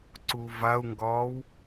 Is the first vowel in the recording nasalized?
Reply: no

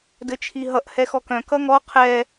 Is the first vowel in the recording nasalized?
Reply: no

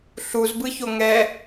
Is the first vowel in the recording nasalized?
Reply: no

